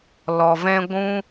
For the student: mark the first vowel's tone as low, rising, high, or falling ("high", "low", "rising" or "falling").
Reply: low